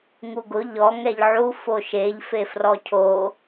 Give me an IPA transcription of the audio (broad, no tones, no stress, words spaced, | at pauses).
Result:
ŋuɡʊ ʎɔ ŋɛʎʕu foʃeʎ fefrɔcʰo